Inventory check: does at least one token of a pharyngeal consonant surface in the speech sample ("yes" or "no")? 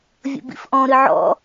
yes